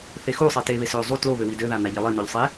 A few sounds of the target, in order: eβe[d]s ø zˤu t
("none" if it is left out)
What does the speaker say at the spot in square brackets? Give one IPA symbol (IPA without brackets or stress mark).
none